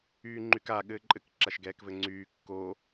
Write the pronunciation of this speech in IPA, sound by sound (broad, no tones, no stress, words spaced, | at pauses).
yːŋ͡ǃyka ɠɘːǃʼɘk ǁaʃɡɛːkvɘŋ͡ǀyː kːo